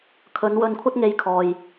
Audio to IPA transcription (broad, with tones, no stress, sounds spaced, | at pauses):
kʰ ɵ˨˧ n w ɵ˧ n kʷʰ ɐ˥ t̚ ŋ e˧ j kʰ ɔː˨ j